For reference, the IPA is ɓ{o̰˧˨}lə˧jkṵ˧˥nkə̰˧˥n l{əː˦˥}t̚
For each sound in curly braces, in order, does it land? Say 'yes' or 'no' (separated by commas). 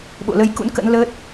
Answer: yes, yes